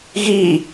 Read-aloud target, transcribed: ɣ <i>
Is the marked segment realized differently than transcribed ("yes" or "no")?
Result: no